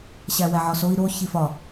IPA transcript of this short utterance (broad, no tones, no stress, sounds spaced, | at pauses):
ɕ æ w æ ʕ ɒ s o i̯ ɾ o ç i f ɒ